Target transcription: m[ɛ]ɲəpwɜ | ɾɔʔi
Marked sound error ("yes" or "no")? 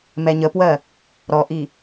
no